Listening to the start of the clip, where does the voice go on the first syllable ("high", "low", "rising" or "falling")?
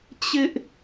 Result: high